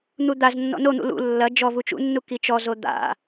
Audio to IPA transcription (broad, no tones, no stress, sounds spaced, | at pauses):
n̪ u d̪ a z nː ɔ̰ n o n̪ ṵ l ṵ lː ɐ d͡ʒ ɔ v u t͡ʃ ṵ nː u k i t͡ʃ ɔ z o d̪ a̰